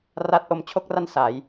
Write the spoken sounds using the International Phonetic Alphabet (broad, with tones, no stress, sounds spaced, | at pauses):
r a˦˥ t̚ ʔ o˧ m t͡ɕʰ o˦˥ k̚ r a˦˥ n s a˩˦ j